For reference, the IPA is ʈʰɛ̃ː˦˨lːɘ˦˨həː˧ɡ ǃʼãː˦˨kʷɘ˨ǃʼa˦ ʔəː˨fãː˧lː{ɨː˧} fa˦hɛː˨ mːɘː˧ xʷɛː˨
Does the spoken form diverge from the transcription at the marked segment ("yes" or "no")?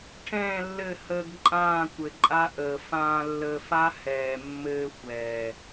yes